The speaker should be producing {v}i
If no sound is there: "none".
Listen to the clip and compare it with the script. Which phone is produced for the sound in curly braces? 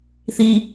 θ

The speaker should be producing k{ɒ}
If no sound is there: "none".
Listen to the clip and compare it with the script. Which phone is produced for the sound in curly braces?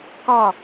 ɒ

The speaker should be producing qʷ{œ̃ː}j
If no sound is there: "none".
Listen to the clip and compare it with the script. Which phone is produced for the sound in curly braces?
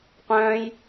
œ̃ː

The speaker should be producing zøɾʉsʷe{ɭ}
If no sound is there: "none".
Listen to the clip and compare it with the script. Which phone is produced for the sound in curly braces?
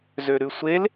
l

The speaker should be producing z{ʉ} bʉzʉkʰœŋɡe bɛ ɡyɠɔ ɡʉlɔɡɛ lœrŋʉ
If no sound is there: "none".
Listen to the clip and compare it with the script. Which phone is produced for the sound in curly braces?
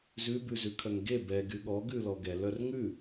ʉ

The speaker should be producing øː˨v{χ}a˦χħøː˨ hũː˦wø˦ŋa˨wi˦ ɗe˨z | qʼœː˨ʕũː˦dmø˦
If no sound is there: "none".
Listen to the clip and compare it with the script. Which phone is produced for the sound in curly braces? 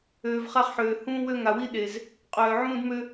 χ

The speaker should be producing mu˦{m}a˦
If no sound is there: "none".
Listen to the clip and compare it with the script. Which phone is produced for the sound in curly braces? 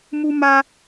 m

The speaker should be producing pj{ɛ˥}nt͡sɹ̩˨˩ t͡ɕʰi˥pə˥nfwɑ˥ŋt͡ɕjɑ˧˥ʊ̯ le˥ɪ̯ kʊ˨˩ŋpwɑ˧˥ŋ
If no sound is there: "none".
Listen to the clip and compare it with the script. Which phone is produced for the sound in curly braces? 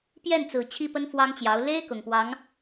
ɛ˥˩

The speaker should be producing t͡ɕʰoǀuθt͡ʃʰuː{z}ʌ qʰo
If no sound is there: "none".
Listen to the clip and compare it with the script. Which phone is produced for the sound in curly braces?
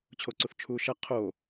ʃ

